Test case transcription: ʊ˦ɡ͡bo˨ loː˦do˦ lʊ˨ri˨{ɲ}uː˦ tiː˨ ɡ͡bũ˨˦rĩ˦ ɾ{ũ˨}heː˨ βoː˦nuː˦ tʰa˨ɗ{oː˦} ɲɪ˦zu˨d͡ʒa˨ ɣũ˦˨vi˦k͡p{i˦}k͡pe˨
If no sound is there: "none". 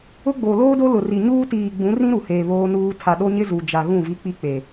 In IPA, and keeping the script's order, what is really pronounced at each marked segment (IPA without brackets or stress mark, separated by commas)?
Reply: ɲ, u˨, o˦, i˦